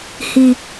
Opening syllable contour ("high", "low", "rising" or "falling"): high